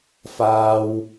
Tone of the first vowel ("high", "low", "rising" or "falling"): high